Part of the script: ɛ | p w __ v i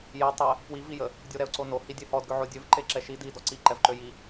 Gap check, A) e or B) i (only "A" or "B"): B